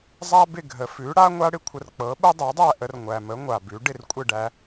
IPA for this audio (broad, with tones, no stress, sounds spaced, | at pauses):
zˤ a˥ b ɪ˥˩ ɡʱ ə˩ f ʉ˩˥ ɽ a˥ ŋʷ a˥ ɽ ɪ˥ kʷʰ ə˧ r k͡p ɤ˩˥ ɓ ə˥ dˤ ɤ˩˥ dˤ æ˥˩ ʔ ə˧ r ŋʷ æ˩ m ə˩˥ ŋʷ a˩ b ʉ˩˥ ɖ ɪ˥˩ r kʷʼ ɪ˥˩ ɖ æ˧